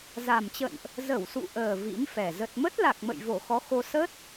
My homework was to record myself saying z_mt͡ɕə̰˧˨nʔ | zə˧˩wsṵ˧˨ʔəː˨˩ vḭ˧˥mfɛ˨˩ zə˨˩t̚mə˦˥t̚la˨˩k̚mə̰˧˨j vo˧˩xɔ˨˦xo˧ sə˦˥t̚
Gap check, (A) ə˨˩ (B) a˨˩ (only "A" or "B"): B